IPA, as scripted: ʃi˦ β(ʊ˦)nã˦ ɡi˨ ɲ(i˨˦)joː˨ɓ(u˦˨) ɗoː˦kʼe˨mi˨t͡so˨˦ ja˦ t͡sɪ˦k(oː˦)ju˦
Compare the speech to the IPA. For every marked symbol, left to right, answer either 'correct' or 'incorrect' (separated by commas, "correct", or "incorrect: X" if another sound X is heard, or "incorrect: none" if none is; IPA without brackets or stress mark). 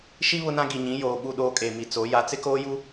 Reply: correct, incorrect: ĩ˨˦, correct, correct